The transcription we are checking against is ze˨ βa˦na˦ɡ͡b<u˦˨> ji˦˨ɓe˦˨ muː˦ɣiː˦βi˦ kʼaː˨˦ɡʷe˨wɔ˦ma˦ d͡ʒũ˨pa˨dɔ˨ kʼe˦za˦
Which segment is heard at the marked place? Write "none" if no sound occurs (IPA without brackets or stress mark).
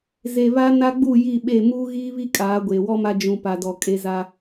u˦˨